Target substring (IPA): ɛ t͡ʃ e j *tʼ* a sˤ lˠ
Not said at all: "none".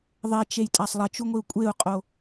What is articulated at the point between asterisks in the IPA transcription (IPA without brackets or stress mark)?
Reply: tʼ